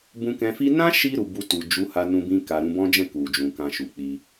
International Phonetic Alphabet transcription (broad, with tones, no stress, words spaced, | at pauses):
bũ˧kɛ̃˧fi˦ nã˦ʃi˧ ɾu˨bu˧ tu˨ d͡ʒu˨˦ ha˧nũ˧bĩ˧ka˨ ɾũ˧bɔ̃˦d͡ʒɛ̃˦˨ ku˨d͡ʒũ˨kã˧ ʃu˨k͡pi˧